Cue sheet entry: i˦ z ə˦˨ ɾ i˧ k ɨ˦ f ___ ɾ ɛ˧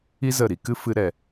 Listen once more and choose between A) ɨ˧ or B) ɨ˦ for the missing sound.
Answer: B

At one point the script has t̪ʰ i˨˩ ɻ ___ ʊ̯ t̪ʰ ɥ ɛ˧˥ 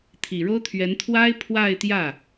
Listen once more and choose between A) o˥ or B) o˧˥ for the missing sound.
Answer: A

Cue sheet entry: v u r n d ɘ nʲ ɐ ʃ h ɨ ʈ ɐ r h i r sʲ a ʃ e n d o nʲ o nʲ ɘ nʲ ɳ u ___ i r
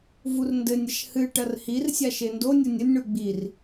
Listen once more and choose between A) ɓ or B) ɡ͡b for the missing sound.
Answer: B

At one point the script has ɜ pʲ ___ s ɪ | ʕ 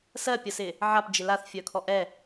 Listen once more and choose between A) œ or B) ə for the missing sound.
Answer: B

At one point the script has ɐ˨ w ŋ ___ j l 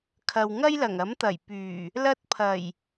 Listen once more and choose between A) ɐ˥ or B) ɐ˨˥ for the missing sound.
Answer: A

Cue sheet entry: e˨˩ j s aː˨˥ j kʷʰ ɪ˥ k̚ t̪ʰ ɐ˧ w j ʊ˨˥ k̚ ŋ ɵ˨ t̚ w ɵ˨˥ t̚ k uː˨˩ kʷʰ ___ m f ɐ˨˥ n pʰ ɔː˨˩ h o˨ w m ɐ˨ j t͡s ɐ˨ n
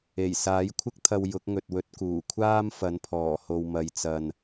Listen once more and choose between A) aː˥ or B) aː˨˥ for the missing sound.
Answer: A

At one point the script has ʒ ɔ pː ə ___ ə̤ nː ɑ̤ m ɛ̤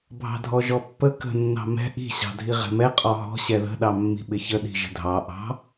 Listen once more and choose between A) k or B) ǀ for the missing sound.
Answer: A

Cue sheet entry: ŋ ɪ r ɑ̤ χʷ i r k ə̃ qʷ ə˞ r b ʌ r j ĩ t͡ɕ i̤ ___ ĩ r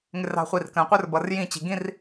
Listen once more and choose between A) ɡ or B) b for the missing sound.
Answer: A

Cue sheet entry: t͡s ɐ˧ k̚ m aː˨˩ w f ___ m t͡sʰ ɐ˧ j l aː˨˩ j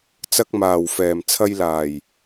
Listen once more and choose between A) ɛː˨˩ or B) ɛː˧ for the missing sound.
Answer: A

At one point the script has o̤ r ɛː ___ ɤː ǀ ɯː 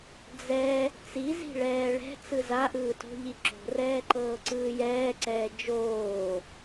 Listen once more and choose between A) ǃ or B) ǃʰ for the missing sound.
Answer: A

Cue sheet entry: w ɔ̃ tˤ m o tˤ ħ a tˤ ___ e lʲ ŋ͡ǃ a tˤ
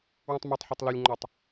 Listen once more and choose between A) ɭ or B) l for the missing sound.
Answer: B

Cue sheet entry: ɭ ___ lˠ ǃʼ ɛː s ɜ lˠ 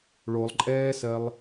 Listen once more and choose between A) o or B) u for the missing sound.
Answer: A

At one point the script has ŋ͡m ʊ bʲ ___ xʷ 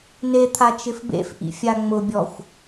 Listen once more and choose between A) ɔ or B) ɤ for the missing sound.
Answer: A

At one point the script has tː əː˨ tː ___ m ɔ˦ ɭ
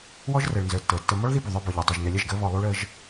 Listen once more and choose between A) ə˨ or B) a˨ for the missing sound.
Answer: A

